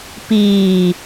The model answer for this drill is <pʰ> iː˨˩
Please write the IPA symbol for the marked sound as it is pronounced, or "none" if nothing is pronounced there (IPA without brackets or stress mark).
p